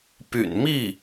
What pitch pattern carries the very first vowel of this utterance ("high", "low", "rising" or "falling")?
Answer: low